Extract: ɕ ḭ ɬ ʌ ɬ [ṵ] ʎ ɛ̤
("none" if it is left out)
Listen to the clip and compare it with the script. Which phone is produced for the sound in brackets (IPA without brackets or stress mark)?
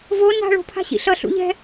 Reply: ṵ